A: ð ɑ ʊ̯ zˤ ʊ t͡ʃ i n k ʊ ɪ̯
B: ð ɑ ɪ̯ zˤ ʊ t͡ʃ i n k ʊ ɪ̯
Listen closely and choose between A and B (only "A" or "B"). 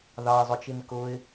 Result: B